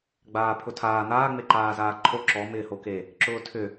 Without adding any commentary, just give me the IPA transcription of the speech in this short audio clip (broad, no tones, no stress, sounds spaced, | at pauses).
ɡ͡b aː pʰ ʊ tʰ aː n̪ aː ŋ͡m e ǃ aː z aː ǃʰ o ǁ ɔ m ɪː h o k e | ǁ ʊː tʰ ʏ